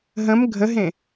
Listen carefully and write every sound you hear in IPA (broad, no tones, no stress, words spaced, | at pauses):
ɦə̃m ɡʱəɦẽ